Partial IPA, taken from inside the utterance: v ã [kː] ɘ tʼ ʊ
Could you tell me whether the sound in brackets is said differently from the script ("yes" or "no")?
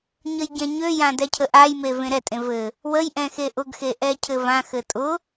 yes